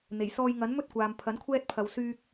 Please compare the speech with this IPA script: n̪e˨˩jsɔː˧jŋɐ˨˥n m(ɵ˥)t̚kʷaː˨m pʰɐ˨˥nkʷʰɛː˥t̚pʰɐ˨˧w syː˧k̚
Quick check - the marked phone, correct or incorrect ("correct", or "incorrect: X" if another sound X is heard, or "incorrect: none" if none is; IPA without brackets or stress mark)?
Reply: correct